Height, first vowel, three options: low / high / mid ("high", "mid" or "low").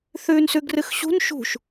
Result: high